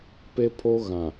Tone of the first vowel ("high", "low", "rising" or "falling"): high